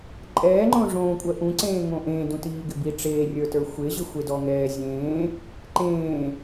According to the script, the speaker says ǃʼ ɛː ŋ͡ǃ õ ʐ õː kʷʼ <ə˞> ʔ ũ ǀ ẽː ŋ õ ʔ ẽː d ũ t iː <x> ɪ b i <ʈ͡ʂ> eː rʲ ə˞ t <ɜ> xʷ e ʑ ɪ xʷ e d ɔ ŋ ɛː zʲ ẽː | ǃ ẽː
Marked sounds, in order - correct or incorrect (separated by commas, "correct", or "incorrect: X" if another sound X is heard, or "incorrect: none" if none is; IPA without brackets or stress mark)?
incorrect: ɜ, incorrect: ɡ, correct, incorrect: ə˞